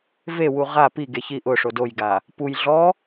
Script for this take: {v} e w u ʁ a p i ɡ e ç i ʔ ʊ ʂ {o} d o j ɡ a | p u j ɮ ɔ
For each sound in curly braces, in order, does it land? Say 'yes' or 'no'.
yes, yes

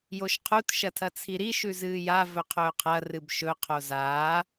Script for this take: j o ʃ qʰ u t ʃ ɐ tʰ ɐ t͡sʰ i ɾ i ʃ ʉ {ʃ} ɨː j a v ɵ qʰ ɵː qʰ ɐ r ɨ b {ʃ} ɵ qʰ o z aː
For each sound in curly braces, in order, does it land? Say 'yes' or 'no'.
no, yes

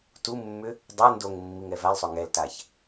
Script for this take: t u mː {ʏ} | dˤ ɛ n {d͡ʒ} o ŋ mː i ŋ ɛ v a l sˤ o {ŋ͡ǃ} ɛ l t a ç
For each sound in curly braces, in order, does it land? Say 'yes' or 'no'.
yes, no, no

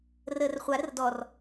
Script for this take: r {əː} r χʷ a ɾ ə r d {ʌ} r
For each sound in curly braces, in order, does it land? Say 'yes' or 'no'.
yes, no

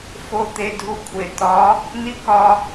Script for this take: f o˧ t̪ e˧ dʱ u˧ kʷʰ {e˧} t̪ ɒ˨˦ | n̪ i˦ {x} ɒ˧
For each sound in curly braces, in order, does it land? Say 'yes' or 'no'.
no, no

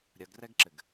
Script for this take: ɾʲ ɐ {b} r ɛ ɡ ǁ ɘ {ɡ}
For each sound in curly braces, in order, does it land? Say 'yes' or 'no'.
no, yes

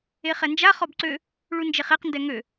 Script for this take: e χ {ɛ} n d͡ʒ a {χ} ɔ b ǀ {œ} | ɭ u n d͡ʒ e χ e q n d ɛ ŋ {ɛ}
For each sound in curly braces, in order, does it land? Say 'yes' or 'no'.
yes, yes, no, no

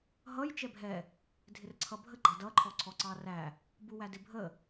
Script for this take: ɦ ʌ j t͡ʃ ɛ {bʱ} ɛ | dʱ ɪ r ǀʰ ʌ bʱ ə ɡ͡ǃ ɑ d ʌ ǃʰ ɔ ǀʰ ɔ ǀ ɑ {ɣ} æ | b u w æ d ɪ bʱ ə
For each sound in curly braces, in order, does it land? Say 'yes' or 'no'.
yes, no

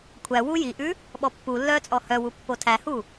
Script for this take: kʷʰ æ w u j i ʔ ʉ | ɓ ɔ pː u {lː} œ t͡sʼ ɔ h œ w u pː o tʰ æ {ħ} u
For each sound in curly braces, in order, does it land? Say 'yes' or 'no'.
yes, no

